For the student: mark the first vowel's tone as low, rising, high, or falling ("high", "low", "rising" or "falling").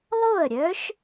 falling